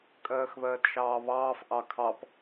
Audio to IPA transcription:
kʼ ɜː x β ɜː t ʃ ɑː β ɑː f ʔ ɑ kʰ ɑ p

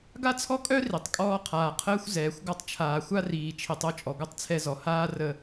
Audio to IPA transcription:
ɡ a˦ t͡sʰ ɔ˦ kʼ œ˦ r i˨ tˤ kʼ ɔː˦ qʰ aː˨ qʰ əː˦ xʷ z ɛː˨ xʷ ɡ ɔ˦ tˤ t͡ʃʰ aː˨ xʷ a˦ r iː˨ t͡ʃʰ i˨ tˤ o˦ t͡ʃʼ ɔ˨ ɡʷ œ˦ tˤ t͡sʰ ɛ˦ z ɔ˨ h aː˦ r ə˦

